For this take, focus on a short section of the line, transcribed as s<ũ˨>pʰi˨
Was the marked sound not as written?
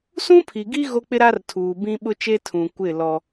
yes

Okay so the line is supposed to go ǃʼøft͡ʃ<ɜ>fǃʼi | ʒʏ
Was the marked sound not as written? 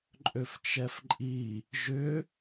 yes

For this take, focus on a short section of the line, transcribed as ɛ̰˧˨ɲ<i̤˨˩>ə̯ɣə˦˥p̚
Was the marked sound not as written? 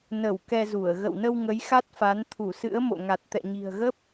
no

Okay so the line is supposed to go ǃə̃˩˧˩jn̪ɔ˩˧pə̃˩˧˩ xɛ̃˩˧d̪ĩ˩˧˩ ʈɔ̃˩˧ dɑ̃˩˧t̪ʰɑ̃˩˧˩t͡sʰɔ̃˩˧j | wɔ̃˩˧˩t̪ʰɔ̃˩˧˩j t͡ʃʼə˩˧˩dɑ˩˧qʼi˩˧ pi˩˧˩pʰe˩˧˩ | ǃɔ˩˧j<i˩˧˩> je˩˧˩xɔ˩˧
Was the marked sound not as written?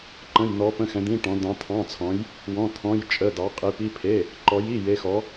no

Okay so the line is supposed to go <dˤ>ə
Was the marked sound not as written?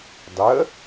no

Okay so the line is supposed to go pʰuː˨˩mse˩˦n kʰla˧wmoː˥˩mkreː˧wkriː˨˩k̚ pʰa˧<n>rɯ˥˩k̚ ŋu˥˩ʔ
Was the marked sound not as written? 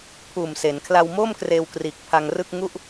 yes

